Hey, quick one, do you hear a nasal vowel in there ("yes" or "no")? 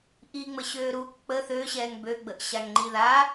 no